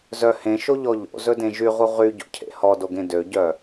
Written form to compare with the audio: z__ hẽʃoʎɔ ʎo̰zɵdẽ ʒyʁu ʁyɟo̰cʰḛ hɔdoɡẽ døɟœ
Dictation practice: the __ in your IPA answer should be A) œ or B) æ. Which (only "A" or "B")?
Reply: A